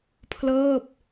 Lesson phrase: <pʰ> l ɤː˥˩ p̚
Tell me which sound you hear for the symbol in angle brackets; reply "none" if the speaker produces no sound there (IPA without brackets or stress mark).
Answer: pʰ